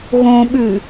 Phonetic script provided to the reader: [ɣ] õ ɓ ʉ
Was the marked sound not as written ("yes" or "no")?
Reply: no